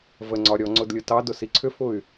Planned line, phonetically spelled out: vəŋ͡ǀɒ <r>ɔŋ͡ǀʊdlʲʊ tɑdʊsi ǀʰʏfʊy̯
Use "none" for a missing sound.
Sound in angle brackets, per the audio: ɾʲ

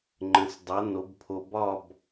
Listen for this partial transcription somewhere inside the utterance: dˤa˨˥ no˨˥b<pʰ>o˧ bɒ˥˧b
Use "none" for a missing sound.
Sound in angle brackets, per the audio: pʰ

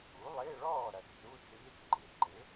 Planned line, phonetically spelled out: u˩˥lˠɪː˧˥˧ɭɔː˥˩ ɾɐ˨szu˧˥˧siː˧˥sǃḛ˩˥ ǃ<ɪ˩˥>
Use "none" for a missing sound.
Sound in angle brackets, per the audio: ɪ˩˥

